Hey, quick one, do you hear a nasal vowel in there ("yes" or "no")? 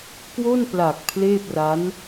no